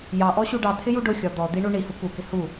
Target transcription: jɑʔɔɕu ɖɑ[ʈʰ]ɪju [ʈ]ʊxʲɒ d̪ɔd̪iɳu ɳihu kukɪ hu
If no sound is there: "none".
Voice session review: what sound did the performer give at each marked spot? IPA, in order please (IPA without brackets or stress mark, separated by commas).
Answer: t̪ʰ, ɖ